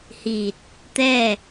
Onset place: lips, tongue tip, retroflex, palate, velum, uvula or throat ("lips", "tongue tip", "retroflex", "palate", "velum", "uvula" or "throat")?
throat